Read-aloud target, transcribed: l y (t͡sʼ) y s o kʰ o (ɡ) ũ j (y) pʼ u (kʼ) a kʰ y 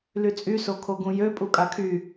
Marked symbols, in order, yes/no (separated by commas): yes, yes, no, yes